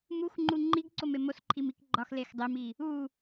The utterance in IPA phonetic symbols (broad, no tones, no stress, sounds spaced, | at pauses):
m u x ŋ͡ǃ u ŋ͡ǃ i ɡ ǀ o m e m o s ǃʰ i m i k ɡ͡ǃ ɒ x l e x dˤ e m i | u